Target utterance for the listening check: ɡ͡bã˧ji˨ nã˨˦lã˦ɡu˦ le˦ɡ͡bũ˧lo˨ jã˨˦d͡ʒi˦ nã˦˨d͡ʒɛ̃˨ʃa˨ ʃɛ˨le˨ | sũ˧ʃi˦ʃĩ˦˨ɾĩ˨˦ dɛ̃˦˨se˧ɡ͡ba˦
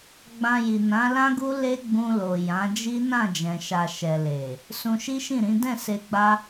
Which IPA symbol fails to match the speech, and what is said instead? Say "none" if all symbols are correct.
none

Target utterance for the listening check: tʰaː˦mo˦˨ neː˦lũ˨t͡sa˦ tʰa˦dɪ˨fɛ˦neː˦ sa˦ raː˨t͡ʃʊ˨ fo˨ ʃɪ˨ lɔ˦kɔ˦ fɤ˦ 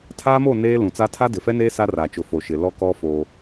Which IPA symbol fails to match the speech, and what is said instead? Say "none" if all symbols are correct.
ɤ˦ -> o˦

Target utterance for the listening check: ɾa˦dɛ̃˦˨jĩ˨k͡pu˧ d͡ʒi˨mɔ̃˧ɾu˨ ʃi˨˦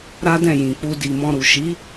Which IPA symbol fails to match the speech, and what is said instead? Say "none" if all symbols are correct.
d͡ʒ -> d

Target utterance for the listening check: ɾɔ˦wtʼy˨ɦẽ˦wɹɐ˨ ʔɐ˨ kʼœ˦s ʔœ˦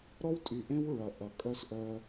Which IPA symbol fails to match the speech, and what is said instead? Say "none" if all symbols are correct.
ɦ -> ʔ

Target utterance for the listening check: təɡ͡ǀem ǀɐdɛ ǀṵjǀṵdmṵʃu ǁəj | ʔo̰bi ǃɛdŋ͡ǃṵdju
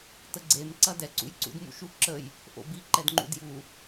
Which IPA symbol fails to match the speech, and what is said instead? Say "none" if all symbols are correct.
none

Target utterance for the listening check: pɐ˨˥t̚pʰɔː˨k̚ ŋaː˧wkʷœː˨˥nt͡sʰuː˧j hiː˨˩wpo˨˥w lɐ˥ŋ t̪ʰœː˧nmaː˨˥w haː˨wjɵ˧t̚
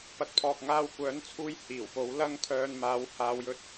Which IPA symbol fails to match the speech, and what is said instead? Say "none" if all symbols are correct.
none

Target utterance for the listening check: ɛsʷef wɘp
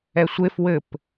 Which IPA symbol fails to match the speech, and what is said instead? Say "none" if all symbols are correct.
none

